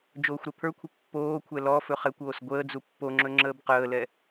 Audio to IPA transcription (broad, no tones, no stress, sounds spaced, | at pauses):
d͡ʒ oː xʷ ɾ ɛ pʰ ə˞ kʷʰ ə pː oː kʷʰ ɛ l ɔ f ɵ χ ɛ kʷ oː s ɡʷ əː d͡z u pː o ŋ͡ǁ ɵ ŋ͡ǁ əː b q əː l ɛ